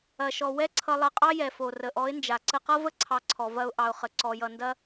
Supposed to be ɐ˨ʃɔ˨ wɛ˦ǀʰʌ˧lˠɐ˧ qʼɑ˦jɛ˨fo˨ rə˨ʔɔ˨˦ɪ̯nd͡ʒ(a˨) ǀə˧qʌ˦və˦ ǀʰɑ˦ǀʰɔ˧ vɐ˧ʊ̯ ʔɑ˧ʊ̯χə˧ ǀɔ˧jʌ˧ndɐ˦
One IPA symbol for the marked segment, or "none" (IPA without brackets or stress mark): a˨